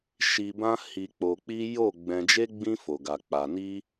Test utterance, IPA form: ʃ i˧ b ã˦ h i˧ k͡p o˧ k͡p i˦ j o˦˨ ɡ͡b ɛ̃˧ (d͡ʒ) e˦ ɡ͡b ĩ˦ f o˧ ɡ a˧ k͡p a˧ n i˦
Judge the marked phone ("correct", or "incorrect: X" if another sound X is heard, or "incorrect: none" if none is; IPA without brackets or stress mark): correct